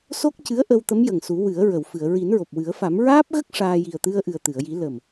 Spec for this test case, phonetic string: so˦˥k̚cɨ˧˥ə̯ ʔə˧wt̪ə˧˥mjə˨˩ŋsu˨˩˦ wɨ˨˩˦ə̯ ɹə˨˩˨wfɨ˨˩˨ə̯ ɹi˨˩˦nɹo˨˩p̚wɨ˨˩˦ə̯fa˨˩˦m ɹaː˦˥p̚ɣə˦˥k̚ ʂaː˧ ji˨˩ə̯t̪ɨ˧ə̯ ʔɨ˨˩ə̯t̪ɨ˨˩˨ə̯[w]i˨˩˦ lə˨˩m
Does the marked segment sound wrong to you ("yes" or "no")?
yes